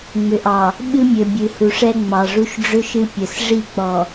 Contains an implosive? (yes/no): yes